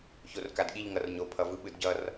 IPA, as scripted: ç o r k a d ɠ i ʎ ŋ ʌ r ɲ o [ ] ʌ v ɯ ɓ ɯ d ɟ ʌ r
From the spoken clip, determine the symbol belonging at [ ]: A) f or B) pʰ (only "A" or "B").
B